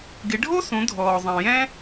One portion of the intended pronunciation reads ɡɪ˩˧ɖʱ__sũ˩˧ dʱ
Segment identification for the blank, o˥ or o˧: o˥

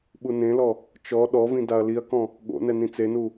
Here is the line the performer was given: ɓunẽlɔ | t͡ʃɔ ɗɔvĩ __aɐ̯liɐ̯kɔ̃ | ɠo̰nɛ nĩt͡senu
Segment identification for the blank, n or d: d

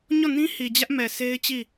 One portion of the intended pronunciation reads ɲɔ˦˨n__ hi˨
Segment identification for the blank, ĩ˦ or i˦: ĩ˦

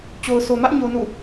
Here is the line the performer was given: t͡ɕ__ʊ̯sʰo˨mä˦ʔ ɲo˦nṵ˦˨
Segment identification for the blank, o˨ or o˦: o˨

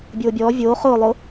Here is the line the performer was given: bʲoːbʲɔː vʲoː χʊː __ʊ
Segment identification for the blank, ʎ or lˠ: lˠ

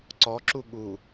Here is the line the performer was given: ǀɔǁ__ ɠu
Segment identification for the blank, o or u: u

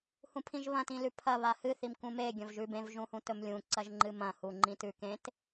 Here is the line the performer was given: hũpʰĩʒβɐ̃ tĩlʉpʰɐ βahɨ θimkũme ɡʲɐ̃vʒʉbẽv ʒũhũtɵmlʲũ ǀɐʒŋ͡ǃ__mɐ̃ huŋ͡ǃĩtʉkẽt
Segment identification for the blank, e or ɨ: ɨ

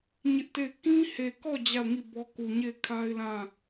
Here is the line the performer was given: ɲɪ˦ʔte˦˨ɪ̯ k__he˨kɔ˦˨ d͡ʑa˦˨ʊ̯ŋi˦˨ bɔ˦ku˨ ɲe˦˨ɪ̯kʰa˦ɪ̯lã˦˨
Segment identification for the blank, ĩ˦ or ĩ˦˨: ĩ˦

